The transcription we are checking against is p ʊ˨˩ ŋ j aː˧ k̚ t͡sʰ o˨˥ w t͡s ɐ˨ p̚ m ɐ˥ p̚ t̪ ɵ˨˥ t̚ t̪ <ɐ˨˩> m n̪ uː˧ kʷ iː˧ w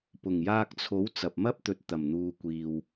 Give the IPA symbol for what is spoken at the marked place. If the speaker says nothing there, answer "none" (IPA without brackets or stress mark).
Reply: ɐ˨˩